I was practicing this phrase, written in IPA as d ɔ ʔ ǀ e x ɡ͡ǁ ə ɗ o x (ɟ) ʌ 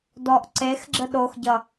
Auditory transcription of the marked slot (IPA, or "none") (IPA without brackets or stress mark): ɟ